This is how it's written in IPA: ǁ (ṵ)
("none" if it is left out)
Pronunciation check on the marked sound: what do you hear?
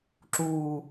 u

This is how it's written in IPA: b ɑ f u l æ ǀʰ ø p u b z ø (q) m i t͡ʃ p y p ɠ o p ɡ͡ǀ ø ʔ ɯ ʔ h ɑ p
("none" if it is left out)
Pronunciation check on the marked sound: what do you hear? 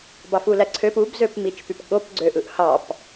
p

